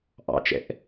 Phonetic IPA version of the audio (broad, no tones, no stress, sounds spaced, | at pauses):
ʔ ɑ̰ t͡ʃ ɛ̰ ʔ